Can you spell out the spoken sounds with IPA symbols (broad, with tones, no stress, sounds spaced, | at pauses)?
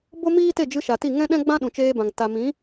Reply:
b o˦ m iː˦ t e˦˨ d͡ʒ ɨ˧ ʃ a˨ t i˦˨ ŋ ɛ̃˦ ɗ ɛ̃˦ ɡ͡b ã˦ ɗ ũ˨ t͡ʃ eː˧ b ã˨ ŋ t a˨ m ĩ˨˦